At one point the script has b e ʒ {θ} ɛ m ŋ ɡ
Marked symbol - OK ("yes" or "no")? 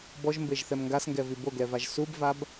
yes